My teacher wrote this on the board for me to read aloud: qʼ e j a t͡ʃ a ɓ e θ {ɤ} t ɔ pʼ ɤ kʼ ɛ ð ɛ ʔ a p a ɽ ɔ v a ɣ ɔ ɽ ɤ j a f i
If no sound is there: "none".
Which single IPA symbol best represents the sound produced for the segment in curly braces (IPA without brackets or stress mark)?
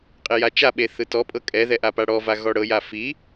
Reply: ɯ